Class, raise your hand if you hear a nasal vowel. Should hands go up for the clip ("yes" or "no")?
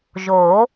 no